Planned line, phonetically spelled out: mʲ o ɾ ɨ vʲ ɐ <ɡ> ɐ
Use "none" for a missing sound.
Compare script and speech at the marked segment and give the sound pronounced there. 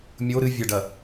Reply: ɖ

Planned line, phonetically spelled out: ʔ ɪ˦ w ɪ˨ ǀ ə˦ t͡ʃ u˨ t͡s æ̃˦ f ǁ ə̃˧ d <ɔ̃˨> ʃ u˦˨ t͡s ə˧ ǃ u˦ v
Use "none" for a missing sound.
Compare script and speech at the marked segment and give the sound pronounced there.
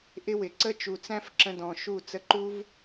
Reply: ɔ̃˨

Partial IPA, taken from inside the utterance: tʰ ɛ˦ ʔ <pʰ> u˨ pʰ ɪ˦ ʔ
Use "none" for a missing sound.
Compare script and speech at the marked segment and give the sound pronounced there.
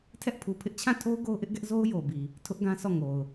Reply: pʰ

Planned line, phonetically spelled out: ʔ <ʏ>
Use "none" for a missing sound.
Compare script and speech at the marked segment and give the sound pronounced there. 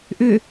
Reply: ʏ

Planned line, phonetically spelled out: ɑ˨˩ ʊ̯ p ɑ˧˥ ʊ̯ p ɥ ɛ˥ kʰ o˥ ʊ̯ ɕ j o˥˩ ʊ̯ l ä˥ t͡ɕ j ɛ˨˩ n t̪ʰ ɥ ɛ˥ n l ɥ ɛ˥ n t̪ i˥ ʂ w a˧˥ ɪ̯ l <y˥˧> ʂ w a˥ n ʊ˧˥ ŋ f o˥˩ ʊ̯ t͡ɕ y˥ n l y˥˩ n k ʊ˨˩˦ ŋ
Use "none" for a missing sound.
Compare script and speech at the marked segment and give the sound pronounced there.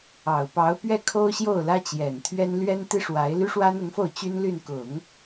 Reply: y˥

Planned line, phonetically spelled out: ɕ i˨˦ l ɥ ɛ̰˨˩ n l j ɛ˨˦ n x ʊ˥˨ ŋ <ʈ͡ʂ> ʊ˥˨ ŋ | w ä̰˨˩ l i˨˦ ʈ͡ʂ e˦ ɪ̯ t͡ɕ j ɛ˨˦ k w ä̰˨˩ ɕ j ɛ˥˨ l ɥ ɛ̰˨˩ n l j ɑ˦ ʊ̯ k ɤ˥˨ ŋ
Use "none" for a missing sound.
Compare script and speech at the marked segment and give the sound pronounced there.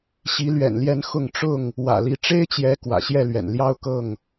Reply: ʈ͡ʂ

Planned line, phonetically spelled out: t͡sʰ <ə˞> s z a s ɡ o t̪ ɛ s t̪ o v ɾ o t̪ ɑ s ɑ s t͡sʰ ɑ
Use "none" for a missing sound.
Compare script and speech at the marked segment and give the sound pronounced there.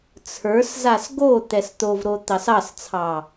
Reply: ə˞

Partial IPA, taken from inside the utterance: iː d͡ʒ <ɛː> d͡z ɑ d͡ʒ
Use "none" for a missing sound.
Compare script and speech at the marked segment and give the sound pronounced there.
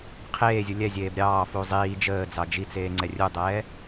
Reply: əː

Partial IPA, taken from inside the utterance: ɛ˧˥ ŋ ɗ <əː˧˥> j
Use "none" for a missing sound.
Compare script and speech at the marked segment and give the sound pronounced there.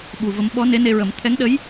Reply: ə˧˥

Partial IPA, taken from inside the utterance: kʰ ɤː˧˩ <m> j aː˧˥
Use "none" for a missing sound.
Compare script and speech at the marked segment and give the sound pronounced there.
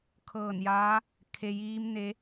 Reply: n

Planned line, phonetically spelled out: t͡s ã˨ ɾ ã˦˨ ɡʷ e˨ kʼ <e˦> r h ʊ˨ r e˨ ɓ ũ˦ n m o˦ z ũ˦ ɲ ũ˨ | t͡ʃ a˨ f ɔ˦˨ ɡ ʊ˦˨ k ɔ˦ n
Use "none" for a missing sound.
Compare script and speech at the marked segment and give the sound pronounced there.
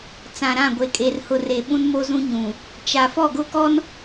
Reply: e˨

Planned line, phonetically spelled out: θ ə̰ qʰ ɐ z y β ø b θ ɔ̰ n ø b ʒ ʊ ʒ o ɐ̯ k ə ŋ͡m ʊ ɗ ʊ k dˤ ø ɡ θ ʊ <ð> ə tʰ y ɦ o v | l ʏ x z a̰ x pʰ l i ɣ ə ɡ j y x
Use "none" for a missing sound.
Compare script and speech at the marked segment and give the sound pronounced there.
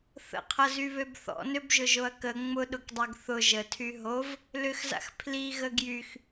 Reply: ʒ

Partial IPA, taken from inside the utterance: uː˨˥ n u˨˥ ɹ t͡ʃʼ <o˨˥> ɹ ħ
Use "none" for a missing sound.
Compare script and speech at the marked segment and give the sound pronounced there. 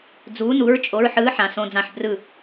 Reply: o˨˥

